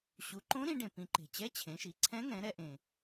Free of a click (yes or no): no